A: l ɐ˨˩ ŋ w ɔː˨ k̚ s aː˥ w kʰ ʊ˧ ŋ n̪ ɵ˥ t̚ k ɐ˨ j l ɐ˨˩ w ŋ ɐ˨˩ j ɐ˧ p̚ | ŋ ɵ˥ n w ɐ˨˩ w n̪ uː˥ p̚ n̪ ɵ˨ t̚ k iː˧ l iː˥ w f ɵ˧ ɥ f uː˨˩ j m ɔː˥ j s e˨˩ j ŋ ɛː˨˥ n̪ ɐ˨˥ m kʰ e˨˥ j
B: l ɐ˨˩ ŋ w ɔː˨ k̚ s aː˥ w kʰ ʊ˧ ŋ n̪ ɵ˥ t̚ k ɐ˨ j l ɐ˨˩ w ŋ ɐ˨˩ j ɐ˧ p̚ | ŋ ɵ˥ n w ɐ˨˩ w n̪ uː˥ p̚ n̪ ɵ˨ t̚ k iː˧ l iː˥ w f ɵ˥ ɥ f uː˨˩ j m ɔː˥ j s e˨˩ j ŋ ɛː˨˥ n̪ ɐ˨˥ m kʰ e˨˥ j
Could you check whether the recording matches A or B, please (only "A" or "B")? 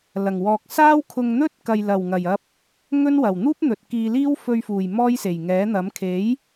A